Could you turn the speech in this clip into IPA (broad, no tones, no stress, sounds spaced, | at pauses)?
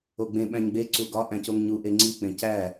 o ɡ͡b ẽ ɓ æ̃ ɲ ɡ͡b e ǀ u ɡ ɒ ʔ æ̃ c o ŋ ɲ u ʔ e ŋ͡ǀ i k͡p ẽ c æ